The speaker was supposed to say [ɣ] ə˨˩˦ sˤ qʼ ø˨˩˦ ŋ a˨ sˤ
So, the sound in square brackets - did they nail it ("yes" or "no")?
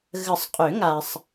yes